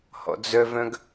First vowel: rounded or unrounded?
rounded